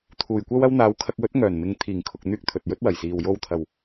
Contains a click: no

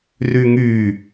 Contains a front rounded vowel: yes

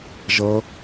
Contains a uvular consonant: no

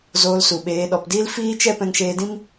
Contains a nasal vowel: yes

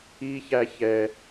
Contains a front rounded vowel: no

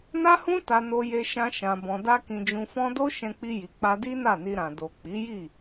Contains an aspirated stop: no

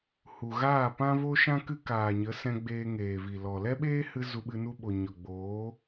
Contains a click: no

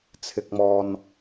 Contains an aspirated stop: yes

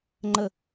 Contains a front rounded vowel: no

